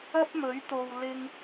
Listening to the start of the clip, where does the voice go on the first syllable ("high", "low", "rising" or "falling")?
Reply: high